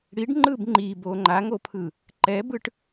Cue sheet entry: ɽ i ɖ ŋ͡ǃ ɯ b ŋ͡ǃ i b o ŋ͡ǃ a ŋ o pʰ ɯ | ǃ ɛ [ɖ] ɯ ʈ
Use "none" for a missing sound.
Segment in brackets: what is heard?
b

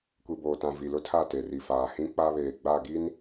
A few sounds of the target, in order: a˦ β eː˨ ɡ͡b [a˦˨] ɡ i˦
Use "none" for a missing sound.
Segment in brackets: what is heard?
a˦˨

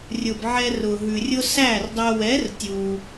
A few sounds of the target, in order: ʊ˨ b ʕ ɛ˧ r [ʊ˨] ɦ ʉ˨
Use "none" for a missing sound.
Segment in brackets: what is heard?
ʊ˨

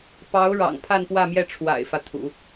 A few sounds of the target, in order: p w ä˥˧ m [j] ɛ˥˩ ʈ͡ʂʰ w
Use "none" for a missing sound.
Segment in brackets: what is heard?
j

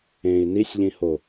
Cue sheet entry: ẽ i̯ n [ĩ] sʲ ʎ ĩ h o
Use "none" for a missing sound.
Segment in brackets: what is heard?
i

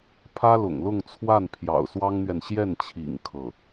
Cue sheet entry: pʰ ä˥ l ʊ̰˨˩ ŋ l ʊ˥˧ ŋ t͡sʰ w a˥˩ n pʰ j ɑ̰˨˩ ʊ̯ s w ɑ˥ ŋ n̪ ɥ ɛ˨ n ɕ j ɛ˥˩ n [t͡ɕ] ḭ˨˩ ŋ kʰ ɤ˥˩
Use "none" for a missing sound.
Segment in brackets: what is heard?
t͡ɕʰ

